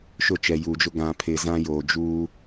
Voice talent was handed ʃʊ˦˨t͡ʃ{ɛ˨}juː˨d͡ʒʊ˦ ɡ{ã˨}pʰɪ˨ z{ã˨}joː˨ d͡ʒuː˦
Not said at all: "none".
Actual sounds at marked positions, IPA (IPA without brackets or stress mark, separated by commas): ɛ˨, ã˨, ã˦